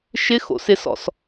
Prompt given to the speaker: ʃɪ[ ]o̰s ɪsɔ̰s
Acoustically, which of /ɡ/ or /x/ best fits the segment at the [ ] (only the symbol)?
x